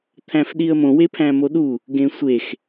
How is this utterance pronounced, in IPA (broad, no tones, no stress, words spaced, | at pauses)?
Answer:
t̪ʰæ̃fɗiə̯mõ wepʰæ̃moɗu | ɡẽsʷex